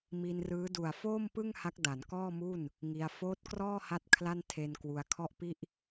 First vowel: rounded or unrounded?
unrounded